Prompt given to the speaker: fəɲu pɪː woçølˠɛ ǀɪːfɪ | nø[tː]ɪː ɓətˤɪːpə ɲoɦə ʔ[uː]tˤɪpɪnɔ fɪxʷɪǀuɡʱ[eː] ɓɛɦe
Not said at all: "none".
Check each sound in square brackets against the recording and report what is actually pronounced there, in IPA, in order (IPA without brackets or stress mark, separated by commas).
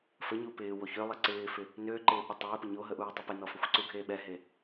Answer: ǃ, uː, eː